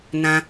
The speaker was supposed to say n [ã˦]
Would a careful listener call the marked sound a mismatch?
no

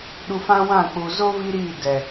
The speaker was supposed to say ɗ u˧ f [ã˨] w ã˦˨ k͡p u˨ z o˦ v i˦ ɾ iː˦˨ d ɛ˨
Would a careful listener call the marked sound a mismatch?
yes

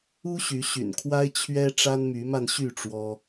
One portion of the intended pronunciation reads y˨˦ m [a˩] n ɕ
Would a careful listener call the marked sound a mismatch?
yes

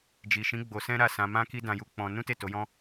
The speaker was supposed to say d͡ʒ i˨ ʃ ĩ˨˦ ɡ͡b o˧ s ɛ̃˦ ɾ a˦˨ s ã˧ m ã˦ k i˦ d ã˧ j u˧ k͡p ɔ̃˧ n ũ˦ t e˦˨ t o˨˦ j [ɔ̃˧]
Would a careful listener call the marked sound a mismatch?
yes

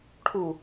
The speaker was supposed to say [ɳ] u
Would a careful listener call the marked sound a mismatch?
yes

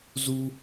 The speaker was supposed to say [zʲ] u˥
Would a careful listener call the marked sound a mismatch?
yes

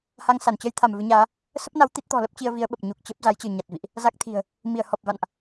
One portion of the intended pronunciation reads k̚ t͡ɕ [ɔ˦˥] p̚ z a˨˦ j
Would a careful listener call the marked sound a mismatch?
yes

